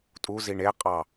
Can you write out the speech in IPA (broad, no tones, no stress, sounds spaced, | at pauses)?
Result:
tʼ u z i ɳ e qʼ ɑ